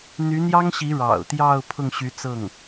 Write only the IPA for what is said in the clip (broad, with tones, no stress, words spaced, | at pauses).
n̪y˧˥n̪jɑ˥ŋɕi˧˥ ɻɑ̰˨˩ʊ̯t̪jɑ˥˧ʊ̯ pʰʊ˥˩ŋɕy˧˥t͡sɤ˥˩ŋ